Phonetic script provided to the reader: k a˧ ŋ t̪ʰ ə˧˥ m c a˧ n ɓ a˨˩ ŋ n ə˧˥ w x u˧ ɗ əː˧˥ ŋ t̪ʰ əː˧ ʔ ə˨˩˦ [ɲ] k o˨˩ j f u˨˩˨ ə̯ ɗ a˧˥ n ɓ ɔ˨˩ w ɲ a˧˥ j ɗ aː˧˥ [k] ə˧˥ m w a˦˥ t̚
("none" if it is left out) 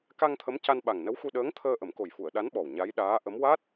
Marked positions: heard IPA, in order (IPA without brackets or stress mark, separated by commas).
m, ʔ